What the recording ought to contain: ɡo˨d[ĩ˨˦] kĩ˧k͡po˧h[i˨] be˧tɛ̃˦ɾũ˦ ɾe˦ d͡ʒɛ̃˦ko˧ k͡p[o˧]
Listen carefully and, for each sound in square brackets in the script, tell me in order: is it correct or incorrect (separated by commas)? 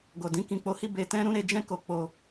correct, incorrect, correct